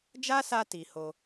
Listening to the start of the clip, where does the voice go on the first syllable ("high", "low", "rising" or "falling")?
high